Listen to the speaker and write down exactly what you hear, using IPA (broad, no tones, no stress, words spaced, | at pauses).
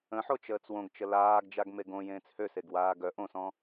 ə̃ħo t͡ʃəːt͡swõɡt͡ʃə laːɡ d͡ʒaɡmeɡõ jẽːt͡shøseɡ waːɡœ ʔõsɔ̃